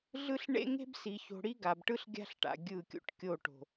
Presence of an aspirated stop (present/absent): absent